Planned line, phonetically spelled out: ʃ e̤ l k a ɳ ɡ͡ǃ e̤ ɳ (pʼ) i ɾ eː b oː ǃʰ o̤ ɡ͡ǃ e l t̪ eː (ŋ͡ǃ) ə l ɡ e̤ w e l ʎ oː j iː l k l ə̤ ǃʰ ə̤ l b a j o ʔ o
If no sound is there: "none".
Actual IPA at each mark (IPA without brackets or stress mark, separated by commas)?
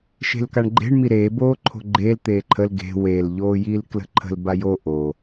m, ǃʰ